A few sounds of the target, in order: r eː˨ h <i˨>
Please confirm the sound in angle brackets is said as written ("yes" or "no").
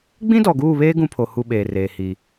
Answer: yes